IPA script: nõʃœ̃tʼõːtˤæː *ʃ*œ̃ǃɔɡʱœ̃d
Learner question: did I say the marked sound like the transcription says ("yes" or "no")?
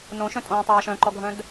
yes